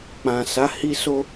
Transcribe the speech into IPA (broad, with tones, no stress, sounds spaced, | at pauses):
k͡p ã˨ s a˨˦ h i˦ s o˦